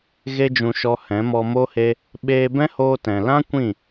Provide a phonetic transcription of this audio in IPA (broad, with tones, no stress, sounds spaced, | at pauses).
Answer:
ɣ e˦ d͡ʒ ũ˧ ʃ ɔ˧ h ɛ̃˨˦ m ɔ˧ m o˦ h e˦ | ɓ eː˧ b ɛ̃˦ h oː˧ t ɛ̃˨ l ã˦ kʷ ĩ˦˨